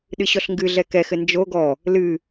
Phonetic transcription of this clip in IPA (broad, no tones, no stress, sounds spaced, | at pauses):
ɗ ɨ ɕ ɔ ɬ ŋ ɡ ɨ ɮ ɛ k ɛ x ɘ n d͡ʒ o ɡ ɔ | l ɨ